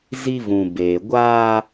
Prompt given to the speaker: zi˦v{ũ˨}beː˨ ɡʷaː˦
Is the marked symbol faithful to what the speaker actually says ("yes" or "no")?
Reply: yes